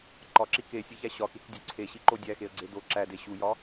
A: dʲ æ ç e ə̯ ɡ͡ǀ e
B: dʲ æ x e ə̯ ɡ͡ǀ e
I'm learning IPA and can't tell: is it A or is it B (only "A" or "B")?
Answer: B